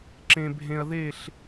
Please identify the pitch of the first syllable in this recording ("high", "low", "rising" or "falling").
low